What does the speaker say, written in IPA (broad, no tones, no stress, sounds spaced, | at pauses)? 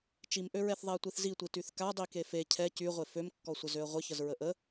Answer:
t͡ʃ i m ʔ ø ɹ ɛ θ ðˤ ɛ ə̯ tʷ i θ z i tʷ i t y θ k a dˤ i k e f e cʰ ɛ c y ʁʷ e f ø m kː ɔ sʷ ə z ø ə̯ ʁʷ ə ç ə z ɹ ə ʔ ə